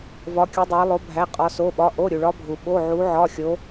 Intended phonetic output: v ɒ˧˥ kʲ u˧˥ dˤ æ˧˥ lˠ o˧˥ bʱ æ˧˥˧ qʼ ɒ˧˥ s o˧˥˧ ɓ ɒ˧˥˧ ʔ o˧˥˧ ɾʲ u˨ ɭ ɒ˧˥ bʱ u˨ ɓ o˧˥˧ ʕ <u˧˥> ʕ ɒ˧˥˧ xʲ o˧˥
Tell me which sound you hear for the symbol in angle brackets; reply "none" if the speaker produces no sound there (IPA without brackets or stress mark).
u˧˥